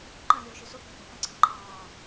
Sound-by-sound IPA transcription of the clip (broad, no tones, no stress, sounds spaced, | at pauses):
ǃ ə̃ lʲ uː ʃ y s u k ẽ k ẽ k ə̃ ǀʰ ə̃ ǃʰ ɑː